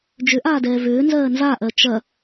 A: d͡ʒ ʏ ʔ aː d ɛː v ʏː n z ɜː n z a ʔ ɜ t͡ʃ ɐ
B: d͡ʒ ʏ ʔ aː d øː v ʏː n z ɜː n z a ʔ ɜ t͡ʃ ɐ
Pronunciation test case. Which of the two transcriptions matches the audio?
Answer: A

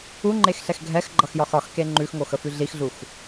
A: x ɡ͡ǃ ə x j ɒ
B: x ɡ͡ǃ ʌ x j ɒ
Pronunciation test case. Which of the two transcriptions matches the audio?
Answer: B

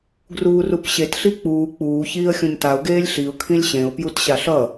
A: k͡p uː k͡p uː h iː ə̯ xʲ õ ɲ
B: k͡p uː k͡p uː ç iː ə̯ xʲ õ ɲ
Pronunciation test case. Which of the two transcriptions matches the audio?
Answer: B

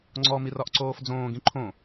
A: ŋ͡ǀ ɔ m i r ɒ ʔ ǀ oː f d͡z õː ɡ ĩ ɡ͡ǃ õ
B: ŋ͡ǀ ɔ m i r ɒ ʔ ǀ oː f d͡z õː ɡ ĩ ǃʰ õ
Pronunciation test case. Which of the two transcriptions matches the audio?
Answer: B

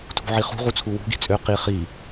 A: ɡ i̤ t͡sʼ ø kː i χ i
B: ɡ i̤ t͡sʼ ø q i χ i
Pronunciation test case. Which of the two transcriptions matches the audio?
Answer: B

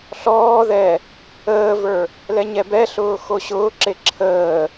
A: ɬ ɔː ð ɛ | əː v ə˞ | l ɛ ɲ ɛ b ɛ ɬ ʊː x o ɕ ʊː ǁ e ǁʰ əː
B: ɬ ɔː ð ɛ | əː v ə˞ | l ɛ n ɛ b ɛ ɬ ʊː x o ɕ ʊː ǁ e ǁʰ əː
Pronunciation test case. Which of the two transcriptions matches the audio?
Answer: A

